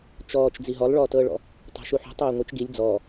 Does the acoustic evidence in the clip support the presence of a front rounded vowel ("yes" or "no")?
no